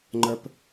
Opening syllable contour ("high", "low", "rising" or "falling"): high